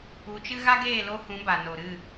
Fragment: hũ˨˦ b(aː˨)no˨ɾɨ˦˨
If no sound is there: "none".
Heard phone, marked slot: a˨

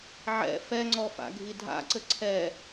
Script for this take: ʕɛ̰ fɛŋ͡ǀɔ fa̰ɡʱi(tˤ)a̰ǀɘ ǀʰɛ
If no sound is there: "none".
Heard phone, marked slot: dʱ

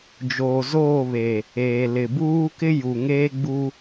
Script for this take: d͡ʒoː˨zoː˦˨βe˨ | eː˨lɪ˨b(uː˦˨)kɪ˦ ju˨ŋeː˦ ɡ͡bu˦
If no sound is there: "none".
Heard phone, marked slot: uː˦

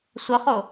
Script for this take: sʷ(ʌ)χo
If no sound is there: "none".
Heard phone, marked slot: ʌ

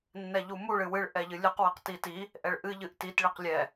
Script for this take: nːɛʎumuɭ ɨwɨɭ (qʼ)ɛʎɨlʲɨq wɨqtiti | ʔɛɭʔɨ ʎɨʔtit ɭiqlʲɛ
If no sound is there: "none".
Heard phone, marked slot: ʔ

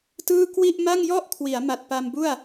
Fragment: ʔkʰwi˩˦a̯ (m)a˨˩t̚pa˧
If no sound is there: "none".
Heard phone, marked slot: m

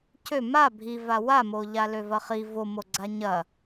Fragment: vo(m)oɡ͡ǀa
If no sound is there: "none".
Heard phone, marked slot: m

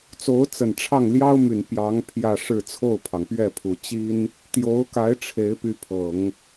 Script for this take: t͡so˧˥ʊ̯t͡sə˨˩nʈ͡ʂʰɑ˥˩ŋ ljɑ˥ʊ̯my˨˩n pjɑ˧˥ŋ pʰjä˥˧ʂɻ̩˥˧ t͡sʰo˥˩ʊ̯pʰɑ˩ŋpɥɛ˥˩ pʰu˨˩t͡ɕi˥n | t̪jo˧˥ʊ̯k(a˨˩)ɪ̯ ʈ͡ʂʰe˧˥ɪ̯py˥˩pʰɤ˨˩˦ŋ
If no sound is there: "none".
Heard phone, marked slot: a˧˥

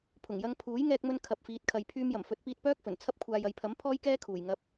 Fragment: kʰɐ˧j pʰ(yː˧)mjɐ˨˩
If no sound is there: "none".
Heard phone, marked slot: yː˧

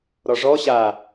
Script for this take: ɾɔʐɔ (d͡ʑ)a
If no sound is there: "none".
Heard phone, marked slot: ɕ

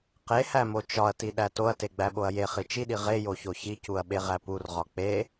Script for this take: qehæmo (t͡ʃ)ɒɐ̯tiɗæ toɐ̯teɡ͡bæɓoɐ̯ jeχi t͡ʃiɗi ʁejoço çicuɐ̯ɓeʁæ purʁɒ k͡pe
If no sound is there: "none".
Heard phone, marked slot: t͡ʃ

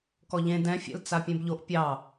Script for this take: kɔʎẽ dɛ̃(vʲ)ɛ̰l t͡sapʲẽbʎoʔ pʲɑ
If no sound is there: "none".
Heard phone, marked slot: fʲ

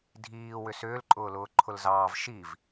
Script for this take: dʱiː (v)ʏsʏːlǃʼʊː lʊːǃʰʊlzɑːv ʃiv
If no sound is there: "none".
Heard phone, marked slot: w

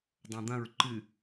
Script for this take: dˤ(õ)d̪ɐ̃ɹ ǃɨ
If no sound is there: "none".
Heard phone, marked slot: õ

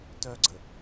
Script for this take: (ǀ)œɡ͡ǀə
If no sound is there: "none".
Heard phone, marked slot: t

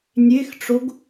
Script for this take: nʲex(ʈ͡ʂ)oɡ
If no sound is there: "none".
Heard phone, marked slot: ʈ͡ʂ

